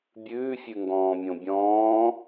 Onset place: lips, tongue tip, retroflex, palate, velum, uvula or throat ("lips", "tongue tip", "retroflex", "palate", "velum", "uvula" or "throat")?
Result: lips